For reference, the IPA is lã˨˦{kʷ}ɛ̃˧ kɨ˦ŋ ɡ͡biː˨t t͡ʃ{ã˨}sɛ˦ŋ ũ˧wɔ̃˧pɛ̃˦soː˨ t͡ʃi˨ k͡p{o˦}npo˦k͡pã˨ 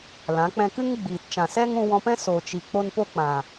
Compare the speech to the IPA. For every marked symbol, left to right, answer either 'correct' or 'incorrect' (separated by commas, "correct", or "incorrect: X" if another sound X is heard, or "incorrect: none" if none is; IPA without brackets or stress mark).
incorrect: k͡p, correct, correct